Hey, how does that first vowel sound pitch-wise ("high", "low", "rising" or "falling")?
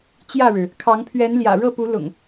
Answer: falling